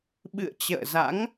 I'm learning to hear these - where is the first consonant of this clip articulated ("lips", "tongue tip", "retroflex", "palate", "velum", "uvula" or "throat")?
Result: lips